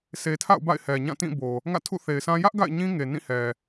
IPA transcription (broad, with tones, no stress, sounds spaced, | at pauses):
sʰ e˨ tʰ a̰˦˨ ʊ̯ b a̰˦˨ ɪ̯ h ɛ˨ ɲ ã˦˨ t ĩ˦˨ b o˨ | ŋ ä̰˦˨ tʰ ṵ˦˨ θ e˨ ɪ̯ sʰ ã˦ j ä˦ ʔ ɡ a̰˦˨ ɪ̯ ɲ ĩ˦ ŋ e˨ n ĩ˦˨ h ɛ˨